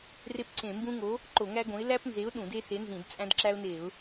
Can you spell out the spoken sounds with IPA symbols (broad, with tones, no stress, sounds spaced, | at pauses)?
r e˦ p ǀ ẽ˧˩˧ m b ũ˦ ŋ o˨˥ | ǃ o˧˩˧ ŋ æ˦ ɡ õ˨˥ ɪ̯ l æ˦ p n z e˨˥ ʊ̯ ɗ ũ˧˩˧ d e˦ s e˨˥ n z ĩ˧˩˧ d t͡sʼ æ̃˦ d ǁ æ˦ ʊ̯ n e˧˩˧ ʊ̯